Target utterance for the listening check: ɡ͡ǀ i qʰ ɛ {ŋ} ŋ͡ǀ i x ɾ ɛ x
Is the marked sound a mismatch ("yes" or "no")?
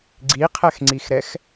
yes